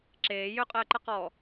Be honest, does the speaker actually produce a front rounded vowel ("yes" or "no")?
yes